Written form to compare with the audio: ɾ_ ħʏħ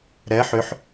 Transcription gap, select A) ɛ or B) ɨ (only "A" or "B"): A